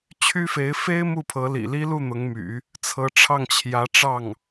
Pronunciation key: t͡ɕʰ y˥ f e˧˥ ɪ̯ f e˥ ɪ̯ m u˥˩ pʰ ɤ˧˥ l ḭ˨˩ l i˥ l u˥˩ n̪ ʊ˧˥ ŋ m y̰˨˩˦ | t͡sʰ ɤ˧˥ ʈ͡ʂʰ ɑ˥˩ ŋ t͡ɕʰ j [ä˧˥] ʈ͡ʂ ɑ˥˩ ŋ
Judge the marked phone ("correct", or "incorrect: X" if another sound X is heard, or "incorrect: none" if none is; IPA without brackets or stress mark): correct